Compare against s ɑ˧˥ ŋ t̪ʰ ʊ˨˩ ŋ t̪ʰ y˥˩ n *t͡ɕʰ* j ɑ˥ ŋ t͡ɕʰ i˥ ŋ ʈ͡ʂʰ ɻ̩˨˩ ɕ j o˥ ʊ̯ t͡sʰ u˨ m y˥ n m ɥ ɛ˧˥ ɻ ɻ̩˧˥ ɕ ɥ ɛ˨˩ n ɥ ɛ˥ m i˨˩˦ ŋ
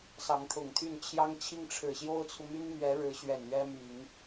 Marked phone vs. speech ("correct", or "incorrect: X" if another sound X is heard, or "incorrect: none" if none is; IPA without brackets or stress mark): correct